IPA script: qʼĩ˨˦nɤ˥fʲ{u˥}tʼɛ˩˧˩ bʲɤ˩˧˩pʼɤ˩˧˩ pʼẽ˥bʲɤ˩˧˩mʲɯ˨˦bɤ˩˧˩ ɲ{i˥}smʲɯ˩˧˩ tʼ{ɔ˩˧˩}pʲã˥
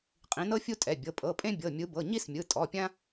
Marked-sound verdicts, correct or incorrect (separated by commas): correct, correct, correct